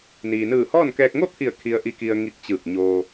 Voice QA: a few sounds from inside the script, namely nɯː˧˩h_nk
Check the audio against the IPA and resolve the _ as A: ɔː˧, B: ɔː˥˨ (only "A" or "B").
B